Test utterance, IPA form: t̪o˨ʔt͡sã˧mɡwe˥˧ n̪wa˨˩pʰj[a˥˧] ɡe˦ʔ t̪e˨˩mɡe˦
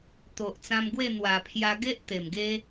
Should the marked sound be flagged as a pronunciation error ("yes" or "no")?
yes